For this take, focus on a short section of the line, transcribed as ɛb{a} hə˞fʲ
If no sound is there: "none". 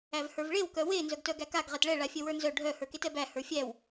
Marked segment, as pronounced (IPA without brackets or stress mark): æ